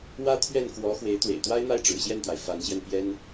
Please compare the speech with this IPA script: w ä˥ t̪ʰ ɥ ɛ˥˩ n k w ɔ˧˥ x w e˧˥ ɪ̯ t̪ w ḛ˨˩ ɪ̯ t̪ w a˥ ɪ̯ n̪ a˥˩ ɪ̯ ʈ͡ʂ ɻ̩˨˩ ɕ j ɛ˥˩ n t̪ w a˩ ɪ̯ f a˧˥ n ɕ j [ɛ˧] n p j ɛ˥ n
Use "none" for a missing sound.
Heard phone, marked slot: ɛ˧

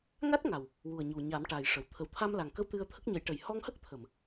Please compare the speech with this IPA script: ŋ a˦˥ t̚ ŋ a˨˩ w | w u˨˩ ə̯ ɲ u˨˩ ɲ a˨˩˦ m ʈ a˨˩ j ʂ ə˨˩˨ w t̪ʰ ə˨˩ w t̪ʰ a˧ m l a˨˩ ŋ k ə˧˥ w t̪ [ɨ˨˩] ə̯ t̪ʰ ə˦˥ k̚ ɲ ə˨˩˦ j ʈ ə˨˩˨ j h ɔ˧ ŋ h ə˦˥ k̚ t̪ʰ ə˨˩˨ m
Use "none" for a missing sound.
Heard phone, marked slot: ɨ˧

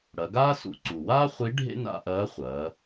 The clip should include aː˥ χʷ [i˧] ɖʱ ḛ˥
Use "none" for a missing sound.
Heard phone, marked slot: i˧˥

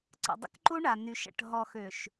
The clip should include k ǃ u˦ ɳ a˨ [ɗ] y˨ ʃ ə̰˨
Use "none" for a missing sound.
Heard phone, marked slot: n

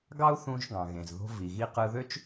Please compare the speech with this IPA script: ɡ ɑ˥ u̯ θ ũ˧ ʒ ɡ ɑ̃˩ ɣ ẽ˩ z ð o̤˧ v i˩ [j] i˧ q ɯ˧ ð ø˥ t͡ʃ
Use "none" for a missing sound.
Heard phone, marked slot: ɣ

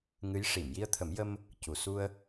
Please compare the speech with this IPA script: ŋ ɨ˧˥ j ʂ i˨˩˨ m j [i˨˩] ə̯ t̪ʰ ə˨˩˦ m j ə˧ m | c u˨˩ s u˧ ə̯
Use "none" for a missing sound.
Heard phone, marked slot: i˧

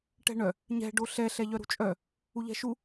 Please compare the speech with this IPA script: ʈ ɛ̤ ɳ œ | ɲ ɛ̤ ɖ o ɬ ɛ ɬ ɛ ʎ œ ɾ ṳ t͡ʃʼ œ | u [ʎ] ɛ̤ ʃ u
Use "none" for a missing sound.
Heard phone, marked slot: ʎ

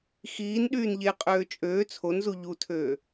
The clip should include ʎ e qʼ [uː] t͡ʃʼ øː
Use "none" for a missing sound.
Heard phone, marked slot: øː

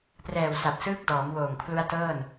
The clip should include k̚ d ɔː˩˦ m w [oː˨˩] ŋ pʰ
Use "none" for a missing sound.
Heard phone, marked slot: oː˨˩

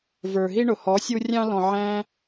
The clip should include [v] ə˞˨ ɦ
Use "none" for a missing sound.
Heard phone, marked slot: v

